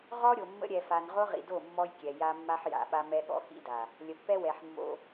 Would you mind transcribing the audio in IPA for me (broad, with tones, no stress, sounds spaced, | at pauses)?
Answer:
ʁ ɔ˦ ɾʲ o˨ mː ə̰˦ ɾʲ ɛ˨ f a˨ n ʁ o˦ ʁ ḭ˨ d o˦˨ mː ɔ˦ j kʲ ɛ˨ j a˦ mː a˦ ħ j a̰˨ ɓ a˦ m ɛ˦ ɠ ɔ̰˦ x ḭ˦ d a˨ | lʲ ə˨ pː ɛ˦ w ɛ˨ ħ mː o̰˦